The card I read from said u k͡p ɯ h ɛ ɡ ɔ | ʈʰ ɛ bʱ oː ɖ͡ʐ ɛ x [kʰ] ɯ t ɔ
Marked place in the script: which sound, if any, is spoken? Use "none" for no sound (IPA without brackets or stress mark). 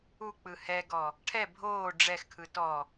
kʰ